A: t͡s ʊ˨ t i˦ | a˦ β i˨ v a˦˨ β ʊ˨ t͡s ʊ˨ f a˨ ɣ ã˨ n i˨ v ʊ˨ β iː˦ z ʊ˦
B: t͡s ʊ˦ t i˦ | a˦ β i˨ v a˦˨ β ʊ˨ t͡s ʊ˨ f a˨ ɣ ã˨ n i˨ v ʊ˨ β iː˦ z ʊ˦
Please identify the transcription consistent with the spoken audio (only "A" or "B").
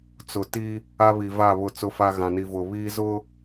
A